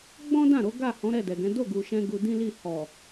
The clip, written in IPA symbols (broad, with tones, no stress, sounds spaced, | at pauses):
ɡ͡b ɔ̃˦ d ã˦˨ ɾ o˨˦ ɡ a˦˨ h ɔ̃˨˦ ɾ ɛ˦˨ d ɛ˨ ɡ ɛ̃˨˦ d o˦˨ ɡ u˨ ʃ ɛ̃˧ ɡ u˧ d ĩ˦ l i˦˨ h ɔ˨